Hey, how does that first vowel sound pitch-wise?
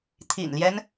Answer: low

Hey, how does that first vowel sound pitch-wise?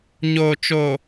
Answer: low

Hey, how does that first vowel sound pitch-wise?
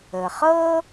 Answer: low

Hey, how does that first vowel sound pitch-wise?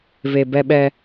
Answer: low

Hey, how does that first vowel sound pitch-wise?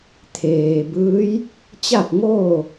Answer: low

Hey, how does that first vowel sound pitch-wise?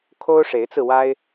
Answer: high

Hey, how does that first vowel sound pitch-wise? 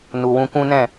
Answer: low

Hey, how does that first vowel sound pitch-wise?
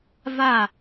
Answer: falling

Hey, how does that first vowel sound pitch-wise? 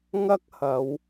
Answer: high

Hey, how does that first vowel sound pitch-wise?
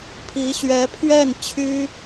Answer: rising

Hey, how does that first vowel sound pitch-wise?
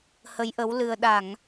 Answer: rising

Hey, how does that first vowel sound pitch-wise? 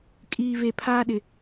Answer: low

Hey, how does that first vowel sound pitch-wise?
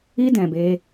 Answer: high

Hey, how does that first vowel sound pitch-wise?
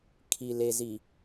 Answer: low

